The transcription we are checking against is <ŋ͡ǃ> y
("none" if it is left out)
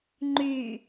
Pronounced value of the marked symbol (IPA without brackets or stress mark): ŋ͡ǃ